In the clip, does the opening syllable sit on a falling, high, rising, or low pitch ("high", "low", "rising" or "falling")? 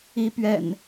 rising